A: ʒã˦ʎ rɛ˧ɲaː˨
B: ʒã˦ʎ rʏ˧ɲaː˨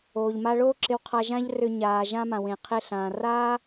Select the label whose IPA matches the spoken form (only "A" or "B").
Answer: B